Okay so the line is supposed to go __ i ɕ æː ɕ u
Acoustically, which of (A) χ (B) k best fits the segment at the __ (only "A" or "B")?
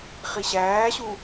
A